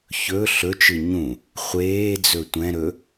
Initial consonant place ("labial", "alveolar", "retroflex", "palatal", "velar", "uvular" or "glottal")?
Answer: palatal